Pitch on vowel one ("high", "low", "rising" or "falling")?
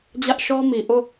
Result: high